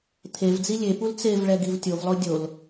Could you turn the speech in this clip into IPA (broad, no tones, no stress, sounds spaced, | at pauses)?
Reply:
t̪ʰ e v d͡z i lʲ e p u l t͡s e v ɭ ɛ ɡ i v tʲ o v lˠ o dʲ o l